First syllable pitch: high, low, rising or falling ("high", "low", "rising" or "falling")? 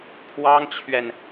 high